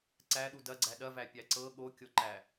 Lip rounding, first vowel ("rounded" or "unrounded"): unrounded